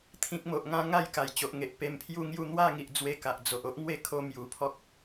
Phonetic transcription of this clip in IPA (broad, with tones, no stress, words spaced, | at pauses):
t̪ʰĩ˨k̚ mo˨ʔŋã˧ ŋa˥˧jka˨˩jt͡ɕo˨ʔŋe˨ʔ pe˧mpʰju˥˧ŋju˥˧ n̪wa˥˧ ŋi˨ʔd͡zwe˧ka˨ʔ d͡zo˨ʔo˦ʔ ŋwe˦kʰo˧ mju˨˩pʰɔ˦k̚